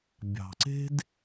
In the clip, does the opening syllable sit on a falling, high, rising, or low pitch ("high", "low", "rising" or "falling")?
low